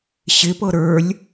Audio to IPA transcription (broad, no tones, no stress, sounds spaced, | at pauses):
ɕ ɪ p ɤ ɾ ə˞ lʲ